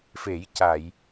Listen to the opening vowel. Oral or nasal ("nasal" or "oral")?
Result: oral